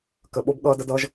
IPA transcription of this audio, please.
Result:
k ə˨ ɓ o˦ b ɠ ʌː˦ d ə˦ d ʌː˦ ʒ

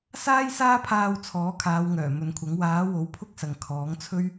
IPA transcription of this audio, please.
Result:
s aː˥ j s aː˥ pʰ aː˧ w t͡sʰ ɔː˨˥ kʰ aː˨˧ w ŋ œː˨˩ m ɵ˨ n kʷʰ ɐ˨˥ ŋ w aː˨˥ w o˨˥ w pʰ ʊ˥ k̚ s ɐ˨ ŋ kʰ ɔː˨˥ ŋ t͡sʰ ɵ˥ ɥ

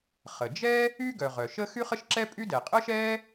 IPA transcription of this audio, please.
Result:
χ ə˩ d͡ʒ ɛ˥ | y˥ ɡ œ˩ ʁ œ˩ ʃ ə˥ x y˥ χ ə˥ ʃ ǁ ɛ˥ pʼ y˥ d ɛ˩ qʼ ə˥ ʃ ɛ˥

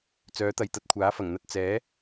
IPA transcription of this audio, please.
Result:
t͡s œː˨˥ t̪ ɐ˨ j t̪ ɐ˧ t̚ kʷʰ aː˨˥ f ɐ˨˩ ŋ n̪ ɐ˧ t̚ t͡s ɛː˨˥

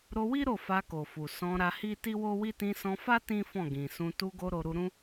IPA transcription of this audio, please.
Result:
ɾ o˧ w i˦ ɾ o˦˨ f a˧ k o˨ f u˨ s ɔ̃˧ ɾ a˧ h i˦ t i˦ w o˦ w i˦ t ĩ˧ s ɔ̃˧ f a˦ t ĩ˦ f ɔ̃˦˨ ɡ ĩ˨ s ũ˧ t u˧ ɡ o˧ ɾ o˧ ɾ u˧ ɾ ũ˦

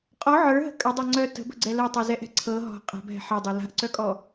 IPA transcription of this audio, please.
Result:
qʼ ɔ ʕ ə˞ ɦ ə̤ kʼ ə dˤ ɛ ŋ͡ǀ œ t ə̤ b ə̤ ɡ͡ǀ ɛ l ɜ tˤ ə˞ z ɛ ʔ ɛ̤ ǀʰ ɤ ɦ ɔ̤ qʼ a̤ b ɦ ɛ̤ ħ ɜ dˤ ɛ l a̤ ʔ ǀ œ kʼ ɔ

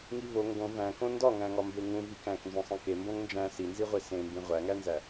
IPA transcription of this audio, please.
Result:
ŋ i v o ŋ ɡ õ v æ̃ k õ n d ɒ ŋ æ̃ ŋ ɒ m b e ŋ ũ v i k æ̃ k n z õ sˤ ĩ k e m b õ ŋ n d͡ʒ æ̃ s i n z i ʁʷ e s ẽ m b ĩ ʁʷ æ ŋ æ n z æ

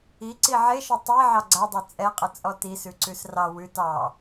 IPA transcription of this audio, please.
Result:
i ǀ i ʕ e ʃ ɔ tˤ e ʕ ɑ ɡ͡ǀ a dˤ ɛ t͡sʼ ɛ qʼ ə t͡sʼ ɔ t i s ʉ ǀ ʉ s r ɑ w ʉ t ɑ

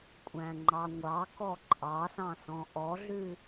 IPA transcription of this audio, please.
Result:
kʷʼ æ̃ ŋ͡ǃ ɑ ŋʷ ɑ k ɔ ǃʼ ɑ s ɑ̃ s ɔ̃ ʔ ɔ ɮ ʉ

